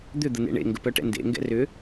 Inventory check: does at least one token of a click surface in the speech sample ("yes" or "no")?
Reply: no